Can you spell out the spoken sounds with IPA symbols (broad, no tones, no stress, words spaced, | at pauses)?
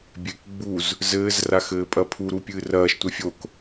bʲek ɡ͡buz | zɘːz raxɘːpʼɐpʰu ɾupʲɨːrɐːʃ tʷɛfʲok